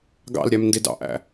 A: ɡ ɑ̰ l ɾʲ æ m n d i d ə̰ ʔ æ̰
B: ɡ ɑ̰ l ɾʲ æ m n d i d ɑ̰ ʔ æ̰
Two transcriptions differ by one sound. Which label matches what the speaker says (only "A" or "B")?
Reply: B